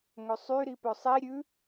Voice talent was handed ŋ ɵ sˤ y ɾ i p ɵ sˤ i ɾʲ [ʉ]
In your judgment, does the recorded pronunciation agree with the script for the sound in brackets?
yes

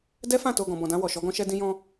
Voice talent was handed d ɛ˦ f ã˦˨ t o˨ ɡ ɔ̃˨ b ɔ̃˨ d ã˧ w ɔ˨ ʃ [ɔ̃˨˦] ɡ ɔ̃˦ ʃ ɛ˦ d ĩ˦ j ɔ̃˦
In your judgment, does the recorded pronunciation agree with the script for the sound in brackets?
no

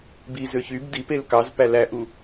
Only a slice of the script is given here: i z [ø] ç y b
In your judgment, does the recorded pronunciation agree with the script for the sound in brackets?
yes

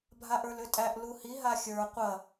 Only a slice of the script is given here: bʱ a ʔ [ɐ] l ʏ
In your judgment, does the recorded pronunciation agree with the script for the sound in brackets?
no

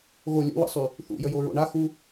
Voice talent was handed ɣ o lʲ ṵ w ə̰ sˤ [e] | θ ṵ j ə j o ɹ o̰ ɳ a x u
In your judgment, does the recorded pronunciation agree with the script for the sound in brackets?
no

